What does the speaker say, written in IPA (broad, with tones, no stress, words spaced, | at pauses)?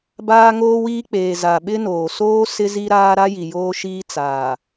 baː˦ŋoː˦wiː˦ k͡peː˨ za˨ɓɪ˦noː˨ soː˦ sɪ˦zi˦ɾaː˦ ɾa˦ji˨ joː˦ʃiː˦ t͡saː˨